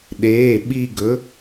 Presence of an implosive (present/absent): present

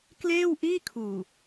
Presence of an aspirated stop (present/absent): present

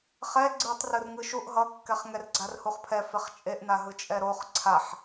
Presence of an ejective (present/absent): present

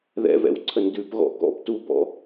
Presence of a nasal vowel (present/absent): absent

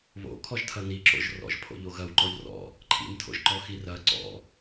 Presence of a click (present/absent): present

